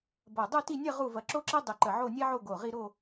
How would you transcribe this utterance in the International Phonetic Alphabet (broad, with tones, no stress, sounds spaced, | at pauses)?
b ɐ˧˩ dˤ y˥˧ t i˥˧ nʲ ɐ˥˧ ʁ u˥˧ v ɐ˧ ǁ o˥ ǁ i˥ dˤ y˧˩ ǃ ə˧˩ ʕ o˥˧ nʲ ɛ˥ ʕ o˥˧ ɡ o˧˩ ʁ i˥˧ ɾ o˥˧